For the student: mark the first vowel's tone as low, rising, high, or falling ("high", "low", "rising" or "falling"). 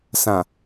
low